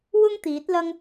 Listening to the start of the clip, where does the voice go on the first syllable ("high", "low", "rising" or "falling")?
high